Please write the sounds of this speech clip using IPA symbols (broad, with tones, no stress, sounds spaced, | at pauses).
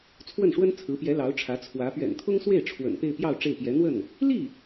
t͡sʰ w ə˥˩ n ʂ w ə˥ n t͡sʰ ɹ̩˧˥ p j ɛ˧˥ l ɑ˧˥ ʊ̯ ʈ͡ʂʰ ä˧˥ t͡sʰ w ä˧˥ p ɥ ɛ̰˨˩ n t̪ʰ ʊ˥ ŋ s w e˥˩ ɪ̯ ʈ͡ʂʰ w ə̰˨˩ n p e˥˧ ɪ̯ p j ɑ˥˧ ʊ̯ ʈ͡ʂ e˥˩ ɪ̯ p j ɛ˧˥ n̪ w ə˥˩ n | l i˥˩